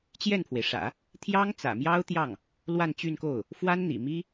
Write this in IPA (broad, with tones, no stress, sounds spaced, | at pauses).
t͡ɕ j ɛ˥˩ n pʰ w e˩ ɪ̯ ʂ ä̰˨˩˦ | t̪ʰ j ɑ˥ ŋ t͡s ä̰˨˩ m j ɑ˥ ʊ̯ t̪ j ɑ˥˩ ŋ | l w a˥˧ n t͡ɕ y˥˧ n k o˥˩ ʊ̯ | f w a˥ n n̪ ḭ˨˩ m i˥